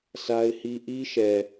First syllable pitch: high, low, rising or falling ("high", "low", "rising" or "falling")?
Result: high